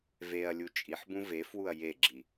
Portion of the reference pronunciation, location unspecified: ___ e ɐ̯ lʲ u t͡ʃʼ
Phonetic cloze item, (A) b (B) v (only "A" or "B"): B